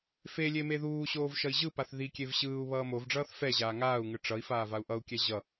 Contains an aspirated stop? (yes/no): no